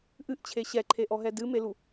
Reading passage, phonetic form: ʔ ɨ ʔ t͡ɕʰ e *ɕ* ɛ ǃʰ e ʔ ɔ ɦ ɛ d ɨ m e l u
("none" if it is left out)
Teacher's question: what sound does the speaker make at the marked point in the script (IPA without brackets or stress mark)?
ɕ